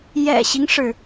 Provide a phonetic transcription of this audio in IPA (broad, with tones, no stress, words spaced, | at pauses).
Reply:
jɛ̰˨˩ɕi˦ŋʂɻ̩˩